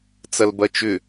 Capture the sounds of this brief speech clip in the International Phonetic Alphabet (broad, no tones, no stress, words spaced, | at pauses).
t͡sɐlbɐt͡ʃʏ